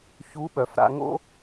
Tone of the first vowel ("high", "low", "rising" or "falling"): rising